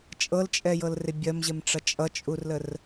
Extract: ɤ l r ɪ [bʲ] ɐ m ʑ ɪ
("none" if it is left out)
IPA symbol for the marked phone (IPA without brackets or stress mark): bʲ